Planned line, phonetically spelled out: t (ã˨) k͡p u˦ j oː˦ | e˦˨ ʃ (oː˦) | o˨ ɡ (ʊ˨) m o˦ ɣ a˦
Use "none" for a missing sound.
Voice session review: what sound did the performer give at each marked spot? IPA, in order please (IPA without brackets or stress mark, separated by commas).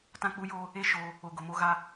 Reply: ã˦, oː˦, ʊ˨